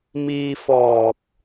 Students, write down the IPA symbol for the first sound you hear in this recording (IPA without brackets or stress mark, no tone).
m